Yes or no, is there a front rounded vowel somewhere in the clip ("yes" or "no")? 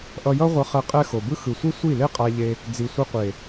no